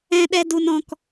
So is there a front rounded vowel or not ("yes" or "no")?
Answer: no